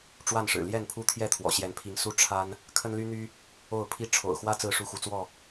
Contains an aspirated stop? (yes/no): yes